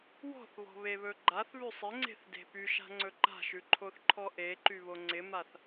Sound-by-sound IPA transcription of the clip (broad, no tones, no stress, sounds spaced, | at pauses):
w ɔ̤ θ β ɔ̤ β e β ɵ ɡ͡ǃ a θ β ʉ sˤ ɪ ŋ͡ǀ e̤ θ d e̤ p y ʃ a̤ ŋ͡ǀ ɵ ǃ a̤ ʃ ʉ ǃʰ o θ ǃʰ ɔ ʔ e ǃ y β o ŋ͡ǀ ɪ m a θ